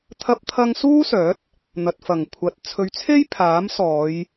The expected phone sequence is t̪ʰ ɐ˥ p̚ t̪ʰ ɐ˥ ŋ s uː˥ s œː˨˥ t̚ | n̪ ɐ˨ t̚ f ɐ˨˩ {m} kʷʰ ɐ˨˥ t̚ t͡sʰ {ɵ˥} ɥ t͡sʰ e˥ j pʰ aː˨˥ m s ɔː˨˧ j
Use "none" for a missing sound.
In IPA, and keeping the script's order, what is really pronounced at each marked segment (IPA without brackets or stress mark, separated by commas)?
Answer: ŋ, ɵ˨˧